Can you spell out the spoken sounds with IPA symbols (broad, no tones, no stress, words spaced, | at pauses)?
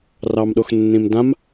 rɑmɗoxnːĩmdãm